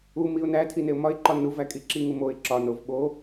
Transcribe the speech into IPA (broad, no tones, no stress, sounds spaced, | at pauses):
u m i ʊ̯ n æ tʰ i n e ʊ̯ m ɒ ɪ̯ ǃ ɒ n u v æ kʼ i ǁ i ŋ u m o ɪ̯ ǁ ɒ n o v ɓ o